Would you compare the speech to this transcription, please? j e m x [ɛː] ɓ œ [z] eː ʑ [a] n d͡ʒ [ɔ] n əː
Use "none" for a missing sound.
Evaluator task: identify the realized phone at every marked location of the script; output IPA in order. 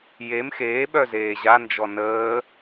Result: eː, z, a, ɔ

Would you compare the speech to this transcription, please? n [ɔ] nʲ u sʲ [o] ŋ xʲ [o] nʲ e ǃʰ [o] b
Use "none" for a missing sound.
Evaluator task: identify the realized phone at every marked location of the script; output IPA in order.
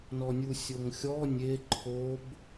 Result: ɔ, o, ɔ, o

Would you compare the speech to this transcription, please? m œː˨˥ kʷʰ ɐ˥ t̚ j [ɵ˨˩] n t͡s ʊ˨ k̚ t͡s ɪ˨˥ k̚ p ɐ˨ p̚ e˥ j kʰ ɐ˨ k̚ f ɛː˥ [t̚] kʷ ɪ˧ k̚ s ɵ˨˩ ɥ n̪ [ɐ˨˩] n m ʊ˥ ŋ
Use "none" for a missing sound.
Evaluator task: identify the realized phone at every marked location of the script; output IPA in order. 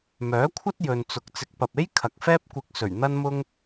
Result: ɵ˨, p̚, ɐ˥

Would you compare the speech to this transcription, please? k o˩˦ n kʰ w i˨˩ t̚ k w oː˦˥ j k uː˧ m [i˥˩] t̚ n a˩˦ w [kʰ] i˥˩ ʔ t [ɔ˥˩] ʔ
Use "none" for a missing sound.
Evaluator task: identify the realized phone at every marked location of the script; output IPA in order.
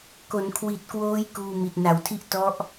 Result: i˨˩, tʰ, ɔ˦˥

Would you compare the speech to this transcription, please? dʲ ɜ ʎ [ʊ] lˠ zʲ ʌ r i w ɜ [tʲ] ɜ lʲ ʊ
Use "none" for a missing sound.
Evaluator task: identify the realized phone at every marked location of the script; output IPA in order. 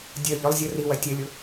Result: ʊ, tʲ

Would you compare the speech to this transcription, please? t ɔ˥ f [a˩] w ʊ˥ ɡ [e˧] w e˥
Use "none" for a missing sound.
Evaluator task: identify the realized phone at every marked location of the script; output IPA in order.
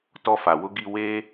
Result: a˩, i˧

